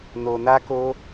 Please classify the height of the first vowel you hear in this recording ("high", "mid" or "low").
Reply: mid